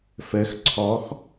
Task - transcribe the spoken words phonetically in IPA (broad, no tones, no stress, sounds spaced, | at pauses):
f ɘ x ǀʰ ɔ x